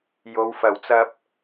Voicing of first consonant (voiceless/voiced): voiced